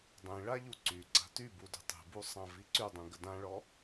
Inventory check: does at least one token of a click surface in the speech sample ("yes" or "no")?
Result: yes